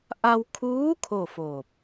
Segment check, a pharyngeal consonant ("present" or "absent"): absent